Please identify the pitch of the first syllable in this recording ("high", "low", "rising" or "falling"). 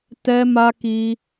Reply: high